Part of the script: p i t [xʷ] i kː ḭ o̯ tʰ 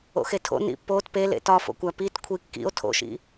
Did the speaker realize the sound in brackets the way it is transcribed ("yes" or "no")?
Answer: no